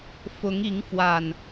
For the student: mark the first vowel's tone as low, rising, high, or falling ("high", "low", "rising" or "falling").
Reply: rising